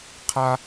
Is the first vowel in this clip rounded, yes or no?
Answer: no